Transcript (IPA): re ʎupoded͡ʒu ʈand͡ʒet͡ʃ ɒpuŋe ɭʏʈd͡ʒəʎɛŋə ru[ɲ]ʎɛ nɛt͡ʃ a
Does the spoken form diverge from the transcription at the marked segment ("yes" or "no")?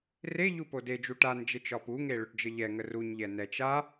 no